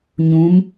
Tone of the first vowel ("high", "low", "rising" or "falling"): rising